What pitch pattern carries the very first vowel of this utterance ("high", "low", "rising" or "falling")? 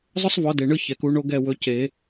high